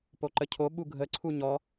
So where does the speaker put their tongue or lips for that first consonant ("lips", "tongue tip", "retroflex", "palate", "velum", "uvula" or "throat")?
lips